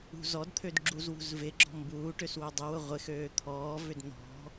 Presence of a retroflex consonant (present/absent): present